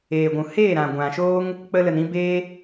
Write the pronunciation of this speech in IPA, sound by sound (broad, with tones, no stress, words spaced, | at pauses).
eː˨ɡʷũ˨ heː˦˨ɾã˨ ɡʷã˨ʃoː˦ŋ | k͡pə˧lə˨n ĩ˦ beː˦